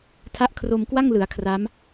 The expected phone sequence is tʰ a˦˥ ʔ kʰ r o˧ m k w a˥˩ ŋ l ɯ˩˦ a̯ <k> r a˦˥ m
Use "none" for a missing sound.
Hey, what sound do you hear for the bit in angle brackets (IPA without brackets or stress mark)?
kʰ